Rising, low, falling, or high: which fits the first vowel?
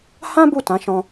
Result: high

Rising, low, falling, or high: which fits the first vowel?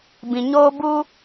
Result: low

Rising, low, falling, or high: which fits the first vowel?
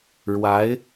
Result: rising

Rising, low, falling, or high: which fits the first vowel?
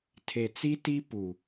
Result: low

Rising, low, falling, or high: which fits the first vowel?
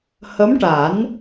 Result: rising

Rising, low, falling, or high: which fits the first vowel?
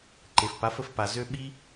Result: low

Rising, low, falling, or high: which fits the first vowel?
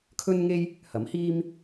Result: high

